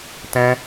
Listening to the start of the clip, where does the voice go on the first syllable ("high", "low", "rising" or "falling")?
high